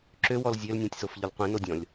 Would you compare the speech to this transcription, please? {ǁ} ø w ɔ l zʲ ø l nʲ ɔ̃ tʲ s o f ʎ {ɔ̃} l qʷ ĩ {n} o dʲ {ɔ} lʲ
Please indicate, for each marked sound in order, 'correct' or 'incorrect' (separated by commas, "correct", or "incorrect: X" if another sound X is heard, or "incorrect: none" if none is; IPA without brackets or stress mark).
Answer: correct, incorrect: ɔ, correct, incorrect: ɔ̃